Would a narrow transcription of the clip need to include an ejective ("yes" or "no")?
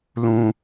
no